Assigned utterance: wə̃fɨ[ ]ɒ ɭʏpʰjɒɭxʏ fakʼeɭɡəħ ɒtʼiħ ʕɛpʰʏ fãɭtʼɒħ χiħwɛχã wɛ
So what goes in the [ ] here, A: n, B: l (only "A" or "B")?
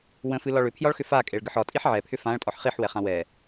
B